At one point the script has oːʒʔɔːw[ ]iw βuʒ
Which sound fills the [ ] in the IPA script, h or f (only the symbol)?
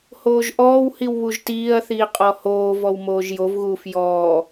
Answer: h